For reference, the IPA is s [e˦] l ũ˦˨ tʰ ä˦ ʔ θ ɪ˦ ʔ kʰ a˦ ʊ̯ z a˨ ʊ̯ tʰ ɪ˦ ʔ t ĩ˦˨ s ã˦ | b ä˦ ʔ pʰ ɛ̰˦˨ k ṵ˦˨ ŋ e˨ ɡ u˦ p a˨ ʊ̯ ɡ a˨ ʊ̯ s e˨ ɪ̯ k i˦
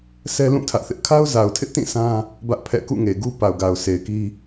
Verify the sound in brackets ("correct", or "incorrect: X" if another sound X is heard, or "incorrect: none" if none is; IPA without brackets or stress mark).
incorrect: ɛ˦